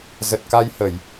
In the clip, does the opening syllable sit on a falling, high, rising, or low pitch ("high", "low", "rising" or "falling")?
low